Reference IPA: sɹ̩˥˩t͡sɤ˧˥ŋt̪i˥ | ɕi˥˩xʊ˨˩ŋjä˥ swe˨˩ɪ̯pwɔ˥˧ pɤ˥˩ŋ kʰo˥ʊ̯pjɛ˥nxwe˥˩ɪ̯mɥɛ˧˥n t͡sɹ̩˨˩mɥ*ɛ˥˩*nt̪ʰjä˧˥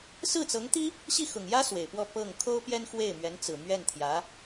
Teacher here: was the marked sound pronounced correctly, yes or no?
yes